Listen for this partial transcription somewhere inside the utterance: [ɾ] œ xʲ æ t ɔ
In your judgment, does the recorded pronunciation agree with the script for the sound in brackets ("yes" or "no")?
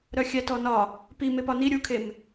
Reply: yes